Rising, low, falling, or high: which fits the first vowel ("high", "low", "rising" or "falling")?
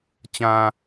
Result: low